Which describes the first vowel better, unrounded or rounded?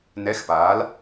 unrounded